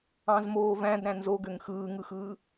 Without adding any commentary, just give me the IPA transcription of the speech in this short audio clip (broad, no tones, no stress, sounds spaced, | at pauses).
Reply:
ɑ̃ z m oː v æ̃ d ɾ æ̃ n z o ɡ ø ŋ x ɯː ŋ ɯ x ɯː